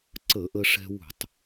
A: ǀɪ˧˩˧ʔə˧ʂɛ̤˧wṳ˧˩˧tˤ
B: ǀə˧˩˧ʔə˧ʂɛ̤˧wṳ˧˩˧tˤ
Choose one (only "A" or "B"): B